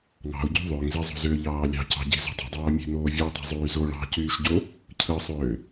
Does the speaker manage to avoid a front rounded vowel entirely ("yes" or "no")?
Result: no